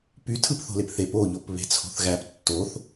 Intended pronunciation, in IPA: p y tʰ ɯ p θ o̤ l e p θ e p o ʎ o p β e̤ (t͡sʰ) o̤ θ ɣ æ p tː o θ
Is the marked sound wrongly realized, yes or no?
no